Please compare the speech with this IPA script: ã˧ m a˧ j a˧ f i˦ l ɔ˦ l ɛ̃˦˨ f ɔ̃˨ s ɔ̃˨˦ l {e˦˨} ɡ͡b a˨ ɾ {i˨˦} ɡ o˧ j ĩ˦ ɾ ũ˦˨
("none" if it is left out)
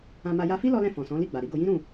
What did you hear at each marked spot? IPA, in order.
i˦˨, i˨˦

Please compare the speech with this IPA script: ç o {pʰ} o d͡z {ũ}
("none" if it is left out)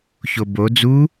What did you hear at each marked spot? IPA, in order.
b, u

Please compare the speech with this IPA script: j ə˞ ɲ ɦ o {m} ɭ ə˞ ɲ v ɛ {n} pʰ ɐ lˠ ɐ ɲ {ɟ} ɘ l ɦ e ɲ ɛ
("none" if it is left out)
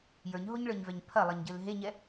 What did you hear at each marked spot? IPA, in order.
ɲ, ɲ, ɟ

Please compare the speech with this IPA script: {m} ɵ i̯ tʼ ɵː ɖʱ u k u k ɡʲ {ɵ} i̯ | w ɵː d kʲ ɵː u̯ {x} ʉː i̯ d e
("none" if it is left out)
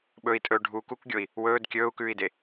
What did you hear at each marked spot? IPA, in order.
ɓ, o, k

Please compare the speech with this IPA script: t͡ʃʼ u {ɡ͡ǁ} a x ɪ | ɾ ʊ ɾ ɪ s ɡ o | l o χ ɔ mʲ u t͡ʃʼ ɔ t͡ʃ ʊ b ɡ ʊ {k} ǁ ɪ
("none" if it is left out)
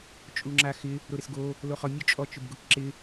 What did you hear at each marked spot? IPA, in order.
ŋ͡ǁ, k

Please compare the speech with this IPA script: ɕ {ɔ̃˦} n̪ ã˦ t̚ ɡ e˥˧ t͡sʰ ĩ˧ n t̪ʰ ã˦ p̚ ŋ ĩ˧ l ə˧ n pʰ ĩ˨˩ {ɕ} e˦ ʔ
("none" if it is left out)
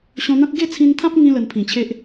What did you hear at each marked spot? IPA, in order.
ɔ̃˧, t͡ɕʰ

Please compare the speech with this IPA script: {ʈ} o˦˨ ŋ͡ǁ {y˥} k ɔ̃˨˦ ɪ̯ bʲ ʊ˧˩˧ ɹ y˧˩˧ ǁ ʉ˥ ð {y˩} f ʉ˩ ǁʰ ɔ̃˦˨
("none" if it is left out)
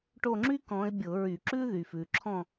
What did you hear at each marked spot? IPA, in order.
ʈ, y˥, y˩

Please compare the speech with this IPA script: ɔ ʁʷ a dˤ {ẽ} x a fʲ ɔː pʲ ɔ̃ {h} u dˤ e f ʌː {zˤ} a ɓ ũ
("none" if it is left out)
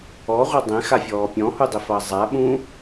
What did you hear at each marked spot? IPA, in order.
ẽ, h, zˤ

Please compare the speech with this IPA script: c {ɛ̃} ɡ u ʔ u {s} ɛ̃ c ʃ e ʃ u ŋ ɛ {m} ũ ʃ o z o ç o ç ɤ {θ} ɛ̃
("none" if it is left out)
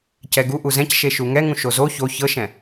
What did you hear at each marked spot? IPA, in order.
ɛ, z, ŋ, ʃ

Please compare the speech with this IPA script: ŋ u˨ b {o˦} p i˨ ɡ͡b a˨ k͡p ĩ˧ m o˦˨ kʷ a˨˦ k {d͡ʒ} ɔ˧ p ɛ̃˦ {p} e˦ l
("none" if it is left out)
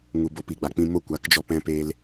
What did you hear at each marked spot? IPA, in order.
o˨, d͡ʒ, p

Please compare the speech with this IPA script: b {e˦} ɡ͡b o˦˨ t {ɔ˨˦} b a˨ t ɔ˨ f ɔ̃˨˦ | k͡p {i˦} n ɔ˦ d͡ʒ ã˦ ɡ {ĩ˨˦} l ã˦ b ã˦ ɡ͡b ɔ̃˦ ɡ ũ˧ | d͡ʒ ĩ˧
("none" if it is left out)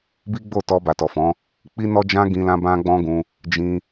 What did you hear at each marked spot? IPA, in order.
i˦, ɔ˧, i˦, ĩ˧

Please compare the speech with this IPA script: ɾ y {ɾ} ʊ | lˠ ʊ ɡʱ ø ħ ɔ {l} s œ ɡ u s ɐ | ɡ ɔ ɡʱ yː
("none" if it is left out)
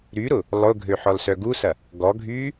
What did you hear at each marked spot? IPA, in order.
ɾ, l

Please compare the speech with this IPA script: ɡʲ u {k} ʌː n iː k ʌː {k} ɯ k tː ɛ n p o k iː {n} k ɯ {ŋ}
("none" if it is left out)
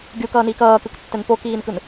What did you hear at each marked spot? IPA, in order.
k, k, n, n

